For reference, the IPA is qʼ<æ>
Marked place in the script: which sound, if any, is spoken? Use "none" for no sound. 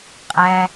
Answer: æ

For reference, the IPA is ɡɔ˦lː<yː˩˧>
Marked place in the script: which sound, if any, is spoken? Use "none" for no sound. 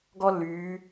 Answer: yː˩˧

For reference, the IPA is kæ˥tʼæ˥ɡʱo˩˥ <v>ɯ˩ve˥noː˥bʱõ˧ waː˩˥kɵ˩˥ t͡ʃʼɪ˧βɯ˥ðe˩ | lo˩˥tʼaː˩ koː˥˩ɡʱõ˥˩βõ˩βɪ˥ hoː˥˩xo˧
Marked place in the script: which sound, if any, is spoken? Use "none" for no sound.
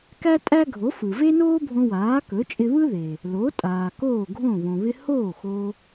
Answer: f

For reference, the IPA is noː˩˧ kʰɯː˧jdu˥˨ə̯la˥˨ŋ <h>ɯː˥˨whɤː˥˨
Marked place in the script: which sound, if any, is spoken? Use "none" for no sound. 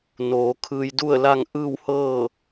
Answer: ʔ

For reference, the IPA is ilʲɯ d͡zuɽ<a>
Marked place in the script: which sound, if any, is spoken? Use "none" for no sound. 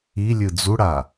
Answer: a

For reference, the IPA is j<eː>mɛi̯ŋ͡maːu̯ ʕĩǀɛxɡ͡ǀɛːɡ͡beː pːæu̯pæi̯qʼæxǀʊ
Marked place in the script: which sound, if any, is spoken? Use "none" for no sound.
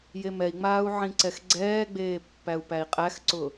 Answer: e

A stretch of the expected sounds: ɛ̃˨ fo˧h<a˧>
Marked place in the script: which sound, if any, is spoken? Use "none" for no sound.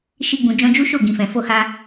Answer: a˧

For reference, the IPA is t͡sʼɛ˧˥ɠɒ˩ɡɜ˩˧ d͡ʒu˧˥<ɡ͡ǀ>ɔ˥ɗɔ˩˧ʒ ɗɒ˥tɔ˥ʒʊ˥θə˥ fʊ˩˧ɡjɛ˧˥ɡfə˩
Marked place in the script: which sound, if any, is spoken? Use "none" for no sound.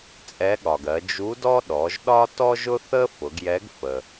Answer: d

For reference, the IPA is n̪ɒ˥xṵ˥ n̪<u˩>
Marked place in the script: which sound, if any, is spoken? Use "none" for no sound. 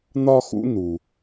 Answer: u˩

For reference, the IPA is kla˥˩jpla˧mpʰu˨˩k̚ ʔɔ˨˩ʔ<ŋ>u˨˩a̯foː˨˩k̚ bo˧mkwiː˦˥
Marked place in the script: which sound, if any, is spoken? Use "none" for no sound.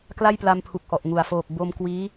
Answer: ŋ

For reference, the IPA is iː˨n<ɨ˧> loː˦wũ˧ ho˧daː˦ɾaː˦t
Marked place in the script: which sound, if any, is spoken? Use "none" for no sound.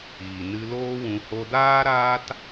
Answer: ɨ˧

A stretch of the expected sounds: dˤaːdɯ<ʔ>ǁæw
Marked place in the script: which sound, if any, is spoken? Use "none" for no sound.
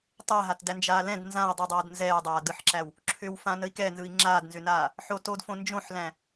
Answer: ħ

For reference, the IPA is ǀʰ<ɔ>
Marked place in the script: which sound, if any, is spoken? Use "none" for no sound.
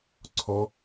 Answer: ɔ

